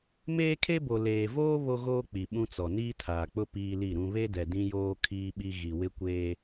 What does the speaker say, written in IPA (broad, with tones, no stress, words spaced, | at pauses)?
meː˦kʰe˦bo˨ leː˨voː˦ βo˦ɣoː˦ k͡pi˨ɓũ˦t͡sɔ˨ niː˦tʰaː˨k͡pʊ˦ piː˦li˦˨ɾũ˦ βe˦dɛ˨ dĩ˦joː˦ kʰiː˦ɓi˦ ɣi˨wɪ˦kʷeː˦